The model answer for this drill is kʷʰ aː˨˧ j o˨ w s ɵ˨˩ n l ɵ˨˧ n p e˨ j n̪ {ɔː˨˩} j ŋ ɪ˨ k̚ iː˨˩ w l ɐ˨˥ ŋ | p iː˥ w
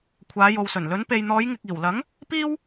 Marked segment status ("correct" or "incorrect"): incorrect